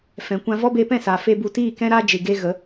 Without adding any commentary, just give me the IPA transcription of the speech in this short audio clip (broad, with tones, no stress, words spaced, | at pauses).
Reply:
fɛ̃˨kʷã˧vɔ˦ beː˧pɛ̃˦˨saː˨ fe˦bu˧ tiː˦˨kɛ̃˦ɾa˦d͡ʒɨ˨ ɡe˦ ɣə˨˦